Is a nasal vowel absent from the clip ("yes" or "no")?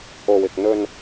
yes